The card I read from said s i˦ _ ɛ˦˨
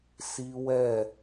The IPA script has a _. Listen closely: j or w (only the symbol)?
w